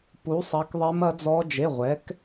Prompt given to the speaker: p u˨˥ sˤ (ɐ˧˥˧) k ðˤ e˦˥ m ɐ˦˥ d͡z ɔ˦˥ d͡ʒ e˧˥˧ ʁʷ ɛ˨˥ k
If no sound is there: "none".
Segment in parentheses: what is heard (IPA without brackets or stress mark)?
ɐ˨˥